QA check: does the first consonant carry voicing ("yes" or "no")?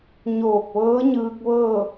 yes